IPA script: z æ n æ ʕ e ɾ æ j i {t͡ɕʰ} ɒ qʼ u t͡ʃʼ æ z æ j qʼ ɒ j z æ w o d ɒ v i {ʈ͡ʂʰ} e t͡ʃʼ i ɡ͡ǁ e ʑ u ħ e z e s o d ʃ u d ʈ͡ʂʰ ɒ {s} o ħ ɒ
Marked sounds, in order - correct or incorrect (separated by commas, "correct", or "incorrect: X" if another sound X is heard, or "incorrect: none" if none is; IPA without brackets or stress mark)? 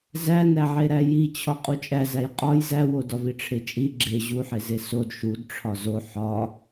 correct, correct, incorrect: z